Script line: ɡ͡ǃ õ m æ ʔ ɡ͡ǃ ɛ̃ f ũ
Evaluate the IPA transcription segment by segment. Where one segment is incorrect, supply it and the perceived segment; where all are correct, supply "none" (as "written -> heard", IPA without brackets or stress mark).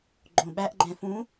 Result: m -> ɓ